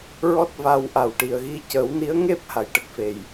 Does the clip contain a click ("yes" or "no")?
no